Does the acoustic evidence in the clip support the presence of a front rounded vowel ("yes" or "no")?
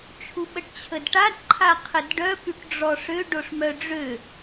yes